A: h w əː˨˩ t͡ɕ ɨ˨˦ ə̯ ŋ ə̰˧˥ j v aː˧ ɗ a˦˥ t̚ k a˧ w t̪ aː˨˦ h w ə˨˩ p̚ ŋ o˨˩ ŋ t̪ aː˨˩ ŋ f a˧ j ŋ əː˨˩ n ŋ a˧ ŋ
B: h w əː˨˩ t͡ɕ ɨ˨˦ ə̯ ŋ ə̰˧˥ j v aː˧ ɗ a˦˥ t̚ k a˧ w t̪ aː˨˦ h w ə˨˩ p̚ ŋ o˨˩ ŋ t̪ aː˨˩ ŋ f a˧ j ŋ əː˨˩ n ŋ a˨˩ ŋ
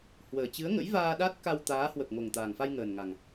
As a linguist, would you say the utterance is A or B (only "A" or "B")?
B